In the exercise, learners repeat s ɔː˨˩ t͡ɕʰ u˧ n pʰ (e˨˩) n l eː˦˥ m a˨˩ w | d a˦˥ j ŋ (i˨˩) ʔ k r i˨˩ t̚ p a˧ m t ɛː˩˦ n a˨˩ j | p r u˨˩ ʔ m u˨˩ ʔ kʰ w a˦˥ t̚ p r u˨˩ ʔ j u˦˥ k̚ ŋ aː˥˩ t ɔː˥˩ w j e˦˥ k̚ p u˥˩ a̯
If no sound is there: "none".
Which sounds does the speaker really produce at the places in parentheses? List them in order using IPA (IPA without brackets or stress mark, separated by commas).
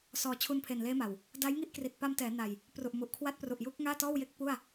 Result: e˨˩, i˥˩